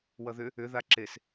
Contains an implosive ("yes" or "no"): no